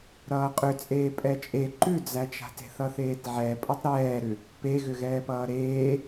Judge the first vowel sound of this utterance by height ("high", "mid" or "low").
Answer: mid